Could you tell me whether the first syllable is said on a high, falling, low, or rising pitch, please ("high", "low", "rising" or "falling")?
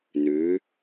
rising